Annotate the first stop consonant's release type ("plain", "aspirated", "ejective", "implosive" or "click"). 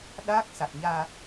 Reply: implosive